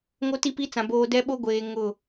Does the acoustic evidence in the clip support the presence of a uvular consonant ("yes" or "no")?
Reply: no